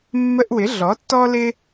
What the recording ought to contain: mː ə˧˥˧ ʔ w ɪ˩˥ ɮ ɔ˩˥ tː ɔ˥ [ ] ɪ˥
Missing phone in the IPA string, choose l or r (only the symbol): l